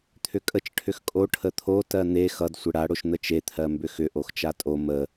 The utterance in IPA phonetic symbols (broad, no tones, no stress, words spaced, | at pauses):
t̪ʰʏkʼət͡ʃ ʈʰʏxkʼo ʈʰət̪ʰo tɜn̪e xʌd sʷɘɽa ɽoʃn̪ət͡ʃe t̪ʰɜmbʏxʏ ʔoxt͡ʃatʼo mə